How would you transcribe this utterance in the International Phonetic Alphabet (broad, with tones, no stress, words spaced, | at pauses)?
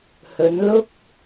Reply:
hɵ˨˧nlʊ˥k̚